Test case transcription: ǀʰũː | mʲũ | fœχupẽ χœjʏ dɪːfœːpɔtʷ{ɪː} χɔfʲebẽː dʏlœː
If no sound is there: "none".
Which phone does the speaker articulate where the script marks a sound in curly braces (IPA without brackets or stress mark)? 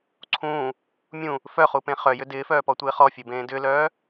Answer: ɪː